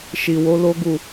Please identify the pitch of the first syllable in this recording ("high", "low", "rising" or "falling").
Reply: low